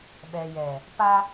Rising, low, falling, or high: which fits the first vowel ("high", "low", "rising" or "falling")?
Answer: low